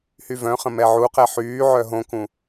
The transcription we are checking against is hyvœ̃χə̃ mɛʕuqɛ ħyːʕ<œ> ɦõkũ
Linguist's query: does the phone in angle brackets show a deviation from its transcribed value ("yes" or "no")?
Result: no